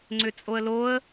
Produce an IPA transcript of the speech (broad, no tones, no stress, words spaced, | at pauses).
ŋ͡ǀʏt͡sʼoə̯loə̯